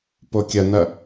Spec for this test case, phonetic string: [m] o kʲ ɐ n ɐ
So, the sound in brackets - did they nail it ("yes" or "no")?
no